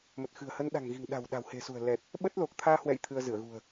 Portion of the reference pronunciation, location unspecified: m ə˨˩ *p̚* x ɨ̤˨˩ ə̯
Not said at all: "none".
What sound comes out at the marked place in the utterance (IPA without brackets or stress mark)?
t̚